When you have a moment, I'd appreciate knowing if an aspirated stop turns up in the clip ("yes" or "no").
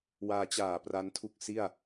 yes